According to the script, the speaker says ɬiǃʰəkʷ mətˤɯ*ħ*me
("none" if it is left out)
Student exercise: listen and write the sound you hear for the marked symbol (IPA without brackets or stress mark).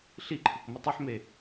ħ